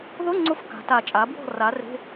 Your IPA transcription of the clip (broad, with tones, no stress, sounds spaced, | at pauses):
ð ʊ˧˥˧ ŋ͡ǀ ʊ˧ f k a̤˩˥ t a˨˩˦ t͡ʃʼ a˩˥ b w ɔ̤˥˩ r a˩˥ r e̤˧˥˧